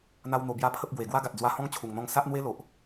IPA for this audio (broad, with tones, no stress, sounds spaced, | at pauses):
n̪ a˦ w n̪ o˧ b j a˦ pʰ ə˦ p̚ ɡ w e˨˩ ɡ w a˦ ɡ a˨ t̚ d͡z w a˧ h ɔ̃˦ ŋ t͡ɕʰ u˨˩ ŋ n̪ ɔ̃˧ ŋ s a˦ ʔ n̪ w e˦ l o˨ ʔ